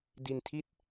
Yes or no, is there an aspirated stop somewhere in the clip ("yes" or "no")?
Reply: yes